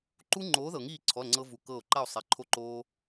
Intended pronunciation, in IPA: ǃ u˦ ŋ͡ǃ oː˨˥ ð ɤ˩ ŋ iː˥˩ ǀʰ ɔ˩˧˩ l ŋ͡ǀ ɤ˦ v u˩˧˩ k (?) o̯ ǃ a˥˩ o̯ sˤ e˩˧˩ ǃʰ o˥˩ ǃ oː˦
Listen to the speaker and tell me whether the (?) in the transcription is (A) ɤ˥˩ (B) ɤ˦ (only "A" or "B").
A